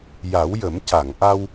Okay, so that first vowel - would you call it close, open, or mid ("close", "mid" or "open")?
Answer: open